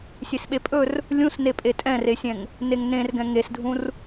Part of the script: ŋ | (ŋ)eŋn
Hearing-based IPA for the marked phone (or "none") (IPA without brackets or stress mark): n